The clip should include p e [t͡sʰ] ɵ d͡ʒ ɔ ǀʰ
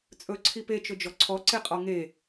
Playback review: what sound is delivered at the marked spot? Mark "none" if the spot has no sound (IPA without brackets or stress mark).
t͡ʃ